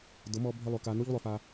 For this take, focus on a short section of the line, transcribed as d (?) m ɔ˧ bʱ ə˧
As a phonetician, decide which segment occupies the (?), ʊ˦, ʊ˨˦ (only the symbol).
ʊ˨˦